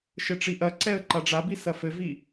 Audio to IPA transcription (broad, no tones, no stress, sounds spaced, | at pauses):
ʃ ɘ ʈ͡ʂ i ʔ ɐ ǀ ɛ ə̯ ǃ a ɖ͡ʐ a b i s ɐ f ɘ v i